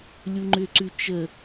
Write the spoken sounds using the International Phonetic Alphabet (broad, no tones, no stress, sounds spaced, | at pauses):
lʲ u ŋ͡ǃ ʏ ǀ ʉ t͡ʃ ə